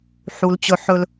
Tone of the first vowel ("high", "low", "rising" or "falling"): high